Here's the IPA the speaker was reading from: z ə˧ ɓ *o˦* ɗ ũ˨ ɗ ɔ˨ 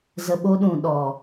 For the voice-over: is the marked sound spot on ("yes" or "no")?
yes